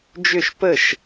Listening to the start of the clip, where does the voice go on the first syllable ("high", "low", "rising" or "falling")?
falling